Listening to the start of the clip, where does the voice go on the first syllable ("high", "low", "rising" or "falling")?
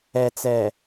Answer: low